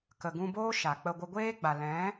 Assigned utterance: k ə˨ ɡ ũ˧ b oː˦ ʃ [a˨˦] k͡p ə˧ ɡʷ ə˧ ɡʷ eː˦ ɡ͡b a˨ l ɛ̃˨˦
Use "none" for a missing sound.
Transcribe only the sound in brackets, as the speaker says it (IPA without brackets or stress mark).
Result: a˨